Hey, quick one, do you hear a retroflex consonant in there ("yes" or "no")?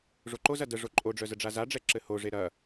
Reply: yes